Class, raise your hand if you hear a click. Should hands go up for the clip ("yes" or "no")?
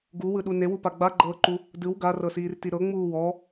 yes